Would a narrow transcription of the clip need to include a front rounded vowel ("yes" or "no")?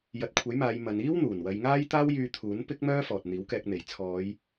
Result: yes